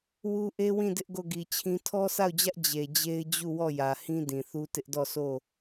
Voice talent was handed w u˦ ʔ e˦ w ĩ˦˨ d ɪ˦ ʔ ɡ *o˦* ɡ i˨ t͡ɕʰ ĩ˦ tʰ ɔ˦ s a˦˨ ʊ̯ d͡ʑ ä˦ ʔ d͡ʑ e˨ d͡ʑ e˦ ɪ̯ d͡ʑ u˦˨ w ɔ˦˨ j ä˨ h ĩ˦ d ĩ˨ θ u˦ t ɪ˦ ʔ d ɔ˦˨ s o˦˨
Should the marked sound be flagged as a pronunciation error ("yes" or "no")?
yes